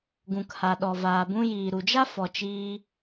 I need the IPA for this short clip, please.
ɡ ũ˨ k h a˨ ɗ ɔ˨ v aː˨ b ũ˧ j iː˨ ɾ u˨ d͡ʒ a˦ f ɔ˨ t͡ʃ iː˧

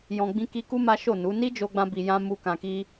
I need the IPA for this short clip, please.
j ɔ̃˧ ɡ͡b ĩ˦ k i˦ k u˦ m a˦ ʃ o˦˨ n u˨˦ n i˦ d͡ʒ o˧ ɡ͡b ã˧ b i˧ j ã˦ m u˦ k ã˧ k i˦

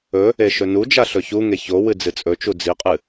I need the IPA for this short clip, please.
ɵ | e ʃ ɵ n u d͡ʒ a ɬ ɵ ç u ŋ e ç o w ɨ d͡z ɨ t͡sʼ ɵ t͡ʃ u d͡z i qʼ ɨ

